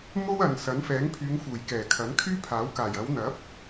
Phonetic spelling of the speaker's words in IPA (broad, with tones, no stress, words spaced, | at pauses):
mo˥w ɐ˨n sɐ˨˥nfɛː˨˥ŋpʰyː˨˧ŋ fuː˨˩jkɛː˨˩kʰɐ˨˥nkʰyː˥ pʰaː˨˥wkaː˨˩j ɐ˨˧wn̪ɐ˨˥p̚